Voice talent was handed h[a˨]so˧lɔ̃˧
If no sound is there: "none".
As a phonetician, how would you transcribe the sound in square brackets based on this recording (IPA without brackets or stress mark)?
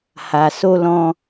a˨